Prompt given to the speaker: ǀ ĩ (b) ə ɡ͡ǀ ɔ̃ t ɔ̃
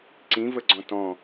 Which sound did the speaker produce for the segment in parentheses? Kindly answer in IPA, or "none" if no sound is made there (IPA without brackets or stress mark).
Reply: v